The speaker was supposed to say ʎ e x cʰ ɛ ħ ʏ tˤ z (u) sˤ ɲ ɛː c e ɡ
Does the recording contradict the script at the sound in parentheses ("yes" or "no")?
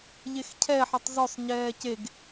yes